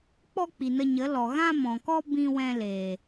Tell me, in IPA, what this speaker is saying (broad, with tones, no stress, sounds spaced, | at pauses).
k͡p ɔ˦ k͡p i˨ n ə˧ ɲ ə˨˦ l ɔ˨ ɣ ã˦ m ɔ̃˨ k ɔ˦ b ĩ˧ w ɛ̃˧ l eː˨